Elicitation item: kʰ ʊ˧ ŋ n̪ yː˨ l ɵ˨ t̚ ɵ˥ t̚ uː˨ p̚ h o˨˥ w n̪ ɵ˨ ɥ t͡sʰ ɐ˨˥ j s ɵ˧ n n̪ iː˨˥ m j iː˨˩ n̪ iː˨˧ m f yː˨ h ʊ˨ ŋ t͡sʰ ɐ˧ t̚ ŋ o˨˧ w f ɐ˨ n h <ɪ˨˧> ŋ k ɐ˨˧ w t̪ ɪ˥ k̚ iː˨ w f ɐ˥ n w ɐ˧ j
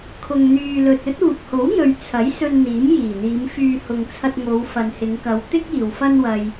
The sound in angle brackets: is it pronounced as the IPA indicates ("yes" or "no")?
yes